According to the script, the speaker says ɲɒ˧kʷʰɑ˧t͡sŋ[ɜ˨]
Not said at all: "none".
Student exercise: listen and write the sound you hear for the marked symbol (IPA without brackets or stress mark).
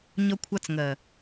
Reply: ɜ˨